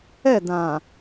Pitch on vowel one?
falling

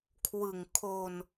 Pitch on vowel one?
low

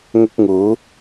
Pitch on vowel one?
high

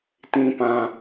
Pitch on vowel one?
low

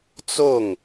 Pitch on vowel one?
falling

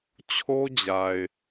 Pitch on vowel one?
high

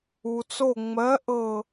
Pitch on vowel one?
low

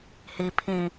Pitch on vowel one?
low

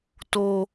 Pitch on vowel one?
high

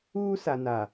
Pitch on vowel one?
high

